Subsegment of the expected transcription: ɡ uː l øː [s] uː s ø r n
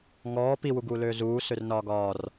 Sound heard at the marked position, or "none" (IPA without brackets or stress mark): z